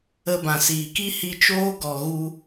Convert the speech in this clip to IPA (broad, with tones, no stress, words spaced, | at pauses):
ə˦bã˨siː˨k i˦hi˧t͡ʃoː˦ ɡɔ˨ɣu˧